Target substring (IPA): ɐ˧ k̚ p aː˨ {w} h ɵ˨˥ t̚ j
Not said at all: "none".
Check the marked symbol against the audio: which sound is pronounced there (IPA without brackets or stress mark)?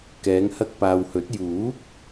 w